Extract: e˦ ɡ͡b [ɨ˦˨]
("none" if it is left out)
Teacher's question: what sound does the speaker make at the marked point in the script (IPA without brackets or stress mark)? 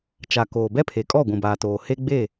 e˦˨